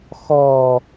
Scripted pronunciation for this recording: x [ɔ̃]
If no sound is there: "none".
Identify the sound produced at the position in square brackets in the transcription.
ɔ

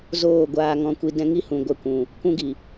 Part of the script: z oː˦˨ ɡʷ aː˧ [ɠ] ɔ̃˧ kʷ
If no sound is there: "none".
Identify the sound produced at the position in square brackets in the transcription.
ŋ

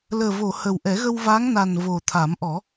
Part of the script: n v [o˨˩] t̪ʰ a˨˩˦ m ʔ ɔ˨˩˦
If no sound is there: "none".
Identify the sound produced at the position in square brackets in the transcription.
o˨˩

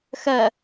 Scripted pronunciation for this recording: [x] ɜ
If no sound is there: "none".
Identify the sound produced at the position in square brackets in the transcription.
x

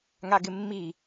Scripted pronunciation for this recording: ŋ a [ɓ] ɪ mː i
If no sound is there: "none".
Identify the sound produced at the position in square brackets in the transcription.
ɡ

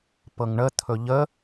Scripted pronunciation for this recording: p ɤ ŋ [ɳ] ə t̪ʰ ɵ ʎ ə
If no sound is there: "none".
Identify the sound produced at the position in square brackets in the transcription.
ɳ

